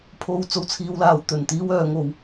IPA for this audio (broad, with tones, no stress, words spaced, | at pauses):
pʰo˧w t͡so˧wt͡sʰiː˧wlaː˨˧wt̪ɵ˨n t̪iː˧w œː˨˧ŋo˨˧w